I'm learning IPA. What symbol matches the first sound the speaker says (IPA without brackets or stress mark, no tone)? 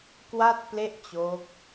k